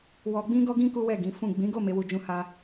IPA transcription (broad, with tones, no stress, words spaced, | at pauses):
wɔ˧ ɡ͡bĩ˦ɡɔ˦ɡĩ˦ ku˦wɛ˦˨ ɡĩ˨˦fũ˦˨ ɡ͡bĩ˨˦ɡo˦˨ me˨˦wu˧d͡ʒũ˧ha˧